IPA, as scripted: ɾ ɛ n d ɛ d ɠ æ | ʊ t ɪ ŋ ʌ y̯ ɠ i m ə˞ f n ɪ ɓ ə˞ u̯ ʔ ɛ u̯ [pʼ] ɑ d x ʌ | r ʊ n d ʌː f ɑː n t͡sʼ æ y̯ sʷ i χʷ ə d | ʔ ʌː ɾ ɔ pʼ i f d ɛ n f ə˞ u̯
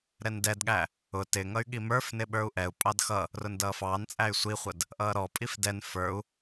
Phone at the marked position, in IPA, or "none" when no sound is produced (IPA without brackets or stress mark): pʼ